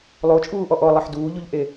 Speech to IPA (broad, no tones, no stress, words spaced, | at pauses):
lˠot͡ʃʼuːʔɔ ʔɔlˠeħ duːʎuʎʔe